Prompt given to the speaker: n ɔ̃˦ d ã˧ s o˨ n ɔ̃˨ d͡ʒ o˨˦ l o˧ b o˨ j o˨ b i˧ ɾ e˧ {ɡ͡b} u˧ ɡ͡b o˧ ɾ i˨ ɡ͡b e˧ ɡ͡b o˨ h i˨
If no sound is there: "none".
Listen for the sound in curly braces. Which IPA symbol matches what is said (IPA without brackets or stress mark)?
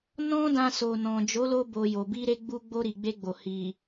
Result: ɡ͡b